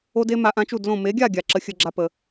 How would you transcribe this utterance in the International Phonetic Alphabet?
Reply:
o˦ d e˦ m a˧ ʔ ã˦ t͡ʃ u˦˨ d l õ˦˨ m e˨˦ ɡʲ a˦˨ ɡʲ a˨ ǁ ə˦ xʲ ə˦ ɡ͡ǁ a˦ p ə˧

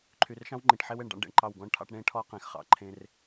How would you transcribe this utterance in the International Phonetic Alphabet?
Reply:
ǃʰ y˨ r ʃ ɑ̃˦ w ŋ͡ǃ ĩ˨ ʈ ħ e˦ w e˨ ɳ ɖ ɑ̰˦ ɳ ɖ ḛ˨ ɳ ǃ ɑ˦˨ w ɡ ɔ̃˦ ɳ ʈʰ ɑ̰˦ ʈ ɳ ẽ˦ ʈʰ ɔ˦ q ẽ˨ x χ ɑ̰˨ ǃʰ ẽ˦ r

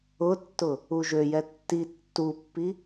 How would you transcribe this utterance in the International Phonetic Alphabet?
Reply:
ʊ tː ʊ | u ʒ ø j ɛ tː i tː u pː i

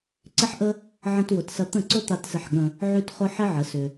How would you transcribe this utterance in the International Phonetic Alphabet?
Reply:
ǀ ɪ˦ ħ ʔ ə˦ | ʕ ə̃˦ t w ʊ˧ t s ɐ˦ t̪ ə̃˦˨ ǀ ʊ˦ t̪ a˧ t s ɪ˧ ħ ɠ ə̃˧ | ʕ y˦ t χ ʊ˦ ħ ɪ˦ ʕ ə˨˦ s ʏ˧

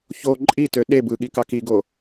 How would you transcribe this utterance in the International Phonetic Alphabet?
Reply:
ç o ǃʼ i t ø ɗ e b ɯ ɠ i k ɑ k i ɡ o

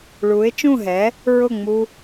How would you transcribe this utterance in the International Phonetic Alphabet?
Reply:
ɭ u˩˥ ɪ̯ t͡ʃ ũ˥˩ ɦ ɛ˩˥ | ɹ ʊ˥˩ ŋ͡m u˥

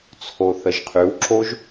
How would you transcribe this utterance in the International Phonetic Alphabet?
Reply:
t͡sʰ o θ ə ʒ qʰ ʉ w ǁ o ʒ

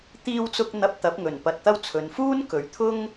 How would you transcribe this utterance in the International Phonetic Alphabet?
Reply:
t̪ iː˧ w t͡s ʊ˧ k̚ n̪ ɐ˧ p̚ t̪ ɐ˨˥ p̚ ŋ ɵ˨˩ n p ɐ˨ t̚ t̪ ɐ˧ w t͡sʰ ɵ˨ n f uː˥ n k ɵ˨ ɥ t̪ʰ ʊ˥ ŋ

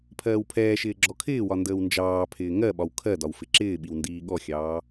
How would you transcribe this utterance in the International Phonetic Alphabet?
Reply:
pʰ ɜː w pʰ ɛː ʃ ɪː ɡ͡ǁ ɔ kʰ ɪː w ɒ n d əː w n d͡ʒ ɑː pʰ ɪː ŋ ɜ ɓ ɒ w kʰ ɜ d ɒ w f ɪ ǁ ɪː ɓ i w n d iː ɠ ɔ xʲ ɑː

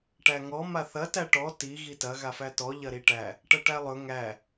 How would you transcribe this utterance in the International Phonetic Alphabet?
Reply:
ʈ æ ŋ ɔ m a θ ɐ t æ ʈ ɔ t i ɣ i t ɐ ɣ a f æ t ɔ ʎ ɐ ɾ i ʈ æ | ʈ ɐ ʈ æ lˠ ɵ ŋ æ

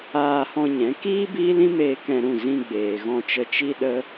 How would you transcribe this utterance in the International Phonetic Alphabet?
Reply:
aː˧ h ɔ̃˧ ɲ ɛ̃˨˦ k iː˦ b iː˦ l ĩ˦ m eː˧ k ɛ̃˧ ɾ ũ˦˨ z ĩ˧ ɡ͡b eː˨ ɣ ɔ̃˧ t͡ʃ ə˧ t͡ʃ i˦ ɗ ə˦

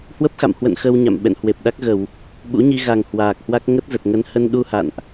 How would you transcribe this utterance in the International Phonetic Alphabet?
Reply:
h w ə˦˥ p̚ x a̰˧˨ m h w ə̰˧˨ n x ə˧ w ɲ a̰˧˨ m ɓ ɛ̰˧˨ n h w e˨˩ p̚ ɗ a˦˥ k̚ ɣ ə˧˩˨ w | ɓ ṵ˧˥ ɲ i˧ ɣ a˨˩ ŋ h w aː˨˩ k̚ h w a˦˥ k̚ ŋ ə˦˥ t̚ z ə˨˩ t̚ ŋ ə˨˦ n h ə˧ n ɗ u˧ h a̰˧˨ n ʔ

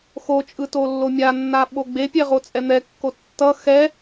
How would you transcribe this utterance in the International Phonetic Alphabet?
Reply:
x o t͡ʃʼ ɯ t o lː o mʲ a nː a ɓ o ɡ͡b e pʲ ɛ ʁ o t͡sʼ ɛ n̪ ɛ kː o tː ʌ x ɛ

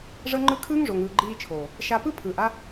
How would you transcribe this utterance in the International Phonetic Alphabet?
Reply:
ʐ ɤ˦ ŋ͡ǃ ɯ˦ kʰ ɯː˦ ŋ ʐ o˨ ŋ ɯː˨ ɡ͡ǃ iː˧ t͡ʃʰ oː˨ | ʃ a˧ p ɯ˦ pʰ ɯː˨ ʔ a˦

